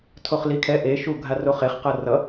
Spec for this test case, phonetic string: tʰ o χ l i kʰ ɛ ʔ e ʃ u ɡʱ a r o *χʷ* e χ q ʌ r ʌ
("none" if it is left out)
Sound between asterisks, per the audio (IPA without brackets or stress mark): χ